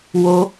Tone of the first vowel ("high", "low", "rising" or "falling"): high